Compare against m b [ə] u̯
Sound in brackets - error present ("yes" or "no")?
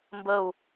no